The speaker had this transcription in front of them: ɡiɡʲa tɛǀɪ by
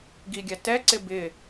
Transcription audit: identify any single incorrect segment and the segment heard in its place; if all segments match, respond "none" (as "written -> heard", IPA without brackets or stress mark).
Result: y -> ɪ